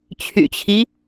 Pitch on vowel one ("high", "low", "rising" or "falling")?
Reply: low